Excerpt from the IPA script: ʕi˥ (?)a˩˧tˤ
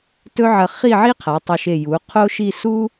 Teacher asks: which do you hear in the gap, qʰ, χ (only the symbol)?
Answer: qʰ